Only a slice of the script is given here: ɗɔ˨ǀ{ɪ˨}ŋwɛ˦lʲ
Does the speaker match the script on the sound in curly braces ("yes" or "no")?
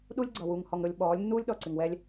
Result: yes